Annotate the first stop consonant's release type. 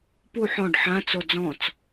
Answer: plain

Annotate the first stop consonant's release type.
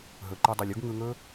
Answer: click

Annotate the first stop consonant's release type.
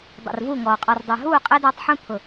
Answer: plain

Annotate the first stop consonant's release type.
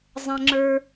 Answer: click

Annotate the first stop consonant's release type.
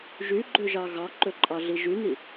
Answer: click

